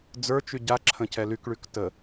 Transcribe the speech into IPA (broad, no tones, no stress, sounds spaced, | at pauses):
d͡z ə˞ t͡ʃ y ɟ a ǁʰ ə̃ c ɛ l y k ɭ y k t ə